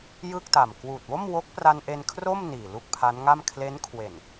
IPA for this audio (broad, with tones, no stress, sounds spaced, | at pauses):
j ɯ˥˩ k̚ t a˨˩ m k w uː˨˩ t̚ w o˥˩ m w o˦˥ k̚ p r a˧ n ʔ e˧ n kʰ r o˥˩ m n iː˨˩ l u˥˩ k̚ pʰ a˦˥ n ŋ a˥˩ m kʰ l e˦˥ n kʰ w e˨˩ n